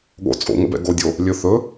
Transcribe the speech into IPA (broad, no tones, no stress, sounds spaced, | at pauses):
ɠ o̰ t͡sʼ o̰ ŋ ə̰ b ɛ̰ ɡ o dʲ o | lʲ ɵ θ ɵ